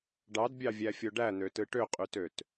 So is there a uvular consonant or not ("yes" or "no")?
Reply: yes